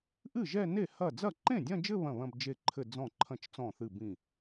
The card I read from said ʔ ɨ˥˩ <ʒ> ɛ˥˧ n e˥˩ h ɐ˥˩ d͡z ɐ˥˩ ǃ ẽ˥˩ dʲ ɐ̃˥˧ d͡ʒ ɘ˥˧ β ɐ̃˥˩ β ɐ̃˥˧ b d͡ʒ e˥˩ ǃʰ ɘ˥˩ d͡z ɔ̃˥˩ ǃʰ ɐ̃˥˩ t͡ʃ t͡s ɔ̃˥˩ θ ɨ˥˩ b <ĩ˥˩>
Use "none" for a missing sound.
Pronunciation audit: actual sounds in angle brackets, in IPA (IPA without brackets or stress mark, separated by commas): ʒ, ĩ˥˩